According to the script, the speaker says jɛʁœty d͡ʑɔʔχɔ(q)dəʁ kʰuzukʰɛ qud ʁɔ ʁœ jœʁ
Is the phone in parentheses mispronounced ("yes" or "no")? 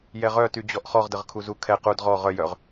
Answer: yes